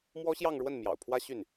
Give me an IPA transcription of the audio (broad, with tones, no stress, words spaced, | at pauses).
mwɔ˥ɕjɑ˥˧ŋɻwə˥˩n mjɑ̰˨˩ʊ̯pʰwä˥ ɕy˥˩n